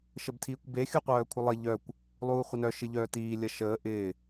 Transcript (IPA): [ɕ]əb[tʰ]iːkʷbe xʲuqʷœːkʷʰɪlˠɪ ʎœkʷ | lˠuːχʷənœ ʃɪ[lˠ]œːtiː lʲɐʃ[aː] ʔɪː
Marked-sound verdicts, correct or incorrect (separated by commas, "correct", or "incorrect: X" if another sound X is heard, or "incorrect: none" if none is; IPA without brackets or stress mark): incorrect: ʃ, correct, incorrect: ʎ, incorrect: əː